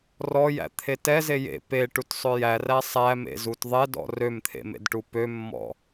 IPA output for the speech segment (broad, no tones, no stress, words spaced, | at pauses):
rɔjæ̰t̪ʰe tɛze jḛ peʈutsˤø jæræ sˤæmḛzut ðˤɛdɔ̰ rømt̪ʰḛmḛdʈu pømːɔ̰